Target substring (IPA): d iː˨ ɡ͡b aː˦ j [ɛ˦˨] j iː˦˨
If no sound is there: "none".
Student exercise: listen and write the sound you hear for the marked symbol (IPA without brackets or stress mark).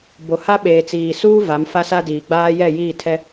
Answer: ɛ˦˨